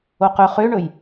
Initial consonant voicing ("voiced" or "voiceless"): voiceless